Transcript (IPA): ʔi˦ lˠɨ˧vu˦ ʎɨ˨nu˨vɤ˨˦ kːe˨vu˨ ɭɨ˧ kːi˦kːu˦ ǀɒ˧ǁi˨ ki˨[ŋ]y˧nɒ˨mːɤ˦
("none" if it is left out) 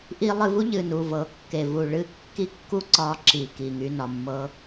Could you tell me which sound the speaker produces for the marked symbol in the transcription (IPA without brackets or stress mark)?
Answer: ŋ